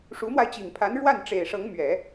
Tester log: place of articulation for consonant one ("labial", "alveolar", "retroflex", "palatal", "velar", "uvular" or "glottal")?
retroflex